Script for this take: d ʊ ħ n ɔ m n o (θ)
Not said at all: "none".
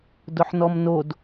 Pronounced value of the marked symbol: d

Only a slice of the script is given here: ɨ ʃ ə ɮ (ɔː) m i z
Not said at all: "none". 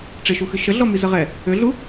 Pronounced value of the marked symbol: ɔ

